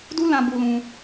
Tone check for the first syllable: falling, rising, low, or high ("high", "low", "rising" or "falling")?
high